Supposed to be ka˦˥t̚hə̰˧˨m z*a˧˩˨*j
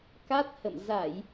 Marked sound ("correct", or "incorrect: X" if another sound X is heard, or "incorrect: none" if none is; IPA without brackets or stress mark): correct